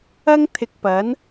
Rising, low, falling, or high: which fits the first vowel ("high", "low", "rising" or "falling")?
high